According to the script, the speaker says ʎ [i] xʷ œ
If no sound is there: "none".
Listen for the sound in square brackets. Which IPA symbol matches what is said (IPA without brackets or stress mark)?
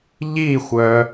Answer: i